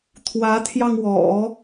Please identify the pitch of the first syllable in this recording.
rising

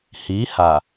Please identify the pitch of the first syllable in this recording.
rising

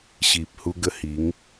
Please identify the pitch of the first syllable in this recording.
low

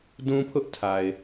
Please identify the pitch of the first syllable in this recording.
high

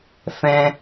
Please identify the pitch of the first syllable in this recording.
high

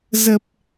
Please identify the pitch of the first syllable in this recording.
low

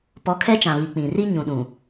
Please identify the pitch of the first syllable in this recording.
rising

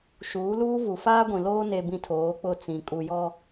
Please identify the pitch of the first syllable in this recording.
rising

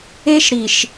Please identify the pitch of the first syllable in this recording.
high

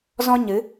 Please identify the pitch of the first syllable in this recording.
high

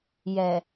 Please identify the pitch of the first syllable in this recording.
low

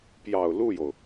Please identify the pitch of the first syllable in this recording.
low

